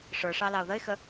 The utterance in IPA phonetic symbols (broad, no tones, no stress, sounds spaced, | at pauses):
ʂ ə˞ ʂ ɑ l ɑ ʊ̯ ð ə ɪ̯ x ə